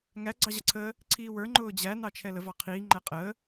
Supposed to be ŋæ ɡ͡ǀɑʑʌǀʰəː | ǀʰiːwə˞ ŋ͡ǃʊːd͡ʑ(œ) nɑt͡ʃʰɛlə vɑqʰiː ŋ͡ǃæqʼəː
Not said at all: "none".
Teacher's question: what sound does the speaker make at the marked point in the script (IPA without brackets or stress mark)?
æ